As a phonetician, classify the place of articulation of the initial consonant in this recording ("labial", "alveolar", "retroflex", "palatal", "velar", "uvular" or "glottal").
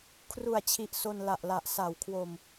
velar